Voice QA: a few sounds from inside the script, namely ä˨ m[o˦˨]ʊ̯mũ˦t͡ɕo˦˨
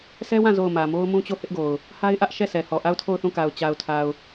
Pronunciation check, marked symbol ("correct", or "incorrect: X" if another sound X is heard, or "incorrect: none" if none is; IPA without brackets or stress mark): incorrect: o˦